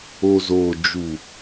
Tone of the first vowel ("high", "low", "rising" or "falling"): low